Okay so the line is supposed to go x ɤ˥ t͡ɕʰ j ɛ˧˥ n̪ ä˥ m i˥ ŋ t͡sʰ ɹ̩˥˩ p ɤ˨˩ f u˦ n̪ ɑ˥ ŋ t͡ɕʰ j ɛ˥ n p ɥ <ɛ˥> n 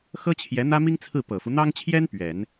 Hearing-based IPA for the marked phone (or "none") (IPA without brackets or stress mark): ɛ˨˩˦